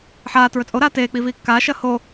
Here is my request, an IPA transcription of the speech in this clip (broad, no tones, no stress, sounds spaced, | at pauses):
ħ aː t ɹ ɵ t͡sʼ o ɾ aː t eː k͡p i v iː kː aː ʃ ɐː h o